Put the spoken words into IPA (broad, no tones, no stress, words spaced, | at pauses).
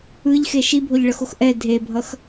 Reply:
ɯʎxe ʃibʱoʎɭʌxox ʔɛ dʱebʱʌx